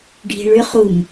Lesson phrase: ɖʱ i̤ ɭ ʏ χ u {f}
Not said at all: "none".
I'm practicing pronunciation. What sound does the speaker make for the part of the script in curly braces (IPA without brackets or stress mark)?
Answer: m